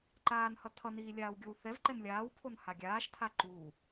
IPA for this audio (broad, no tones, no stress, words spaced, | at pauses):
ǃaːnhʌ tʰʌniː lʲaːwɡʲowθɛvǃɛn lʲaːwpʰon haɡʲaːʃtʰa ǃuː